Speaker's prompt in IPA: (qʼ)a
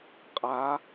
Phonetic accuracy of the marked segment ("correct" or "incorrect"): correct